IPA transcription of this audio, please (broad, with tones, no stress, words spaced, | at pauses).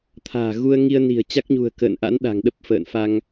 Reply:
t̪ʰa̤ː˨˩ɣu˧ə̯ ŋi˧ə̯ni̤˨˩ə̯ t͡ɕa˦˥k̚ɲṳ˨˩ə̯ kə̰ː˧˨nʔa̰˧˥n ɗa̤˨˩ŋɗə˦˥p̚ fə̰ː˧˨nfa˧ŋ